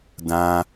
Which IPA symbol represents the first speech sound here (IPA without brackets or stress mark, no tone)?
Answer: d